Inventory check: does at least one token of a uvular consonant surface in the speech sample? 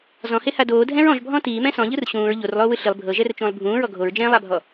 no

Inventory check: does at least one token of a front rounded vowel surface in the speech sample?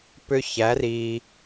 yes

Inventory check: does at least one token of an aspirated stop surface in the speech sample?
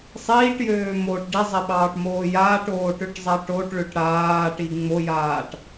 no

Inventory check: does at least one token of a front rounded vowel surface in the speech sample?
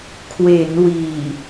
no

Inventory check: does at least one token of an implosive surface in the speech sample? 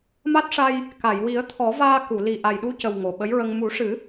yes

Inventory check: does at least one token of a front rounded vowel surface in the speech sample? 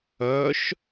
yes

